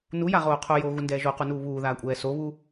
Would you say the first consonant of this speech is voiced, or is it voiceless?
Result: voiced